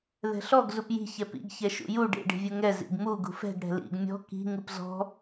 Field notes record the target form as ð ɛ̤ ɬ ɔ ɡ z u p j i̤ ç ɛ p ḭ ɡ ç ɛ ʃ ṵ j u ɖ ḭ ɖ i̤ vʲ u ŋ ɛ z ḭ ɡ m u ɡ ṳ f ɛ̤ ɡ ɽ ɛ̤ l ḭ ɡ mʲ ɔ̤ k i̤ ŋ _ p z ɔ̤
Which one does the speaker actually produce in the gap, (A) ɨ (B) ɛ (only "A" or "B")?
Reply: A